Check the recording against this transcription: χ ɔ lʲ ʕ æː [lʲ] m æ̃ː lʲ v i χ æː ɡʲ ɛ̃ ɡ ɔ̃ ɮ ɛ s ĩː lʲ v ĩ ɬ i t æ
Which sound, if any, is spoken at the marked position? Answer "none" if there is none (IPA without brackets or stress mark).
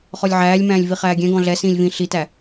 lʲ